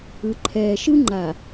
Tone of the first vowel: low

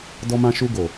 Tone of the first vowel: high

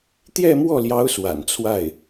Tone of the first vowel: falling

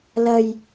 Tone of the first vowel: low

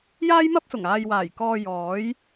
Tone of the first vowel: high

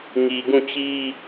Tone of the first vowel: low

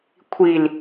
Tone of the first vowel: low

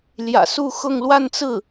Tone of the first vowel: low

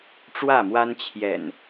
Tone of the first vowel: falling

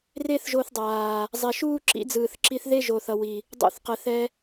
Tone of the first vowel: high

